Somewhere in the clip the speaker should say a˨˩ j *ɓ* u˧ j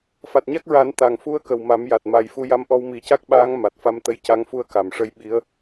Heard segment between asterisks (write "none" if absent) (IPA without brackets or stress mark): f